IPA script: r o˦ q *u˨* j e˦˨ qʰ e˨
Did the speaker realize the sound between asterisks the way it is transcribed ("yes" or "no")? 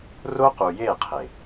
yes